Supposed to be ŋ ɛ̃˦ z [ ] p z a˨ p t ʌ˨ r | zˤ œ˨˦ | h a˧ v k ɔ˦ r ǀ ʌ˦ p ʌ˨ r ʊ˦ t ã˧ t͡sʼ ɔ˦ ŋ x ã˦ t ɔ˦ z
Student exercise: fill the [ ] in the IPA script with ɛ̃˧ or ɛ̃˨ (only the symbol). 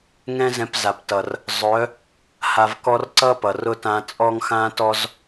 ɛ̃˧